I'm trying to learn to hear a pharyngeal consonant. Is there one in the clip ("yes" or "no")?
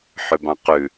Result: yes